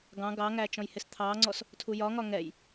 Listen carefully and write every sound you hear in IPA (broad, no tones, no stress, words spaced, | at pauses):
ɡɑ̃ ɡɑŋæ t͡ʃɔ̃jhɪst̪ʰɑŋ͡ǀɔs | tʰujɒŋɒ ŋɛj